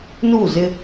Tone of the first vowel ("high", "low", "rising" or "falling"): falling